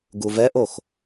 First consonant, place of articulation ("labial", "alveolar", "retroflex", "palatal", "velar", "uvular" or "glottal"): velar